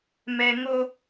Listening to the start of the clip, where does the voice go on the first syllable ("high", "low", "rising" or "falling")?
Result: low